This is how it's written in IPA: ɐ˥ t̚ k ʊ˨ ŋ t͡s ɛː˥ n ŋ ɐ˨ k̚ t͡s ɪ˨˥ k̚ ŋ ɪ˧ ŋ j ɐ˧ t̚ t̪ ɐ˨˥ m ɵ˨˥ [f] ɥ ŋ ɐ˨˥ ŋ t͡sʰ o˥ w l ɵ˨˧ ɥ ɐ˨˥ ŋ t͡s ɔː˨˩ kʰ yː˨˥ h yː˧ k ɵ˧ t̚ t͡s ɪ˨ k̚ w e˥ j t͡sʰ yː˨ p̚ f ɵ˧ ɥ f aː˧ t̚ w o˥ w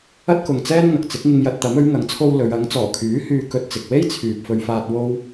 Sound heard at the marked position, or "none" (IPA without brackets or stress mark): none